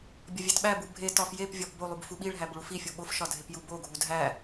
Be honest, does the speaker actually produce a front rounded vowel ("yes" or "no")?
no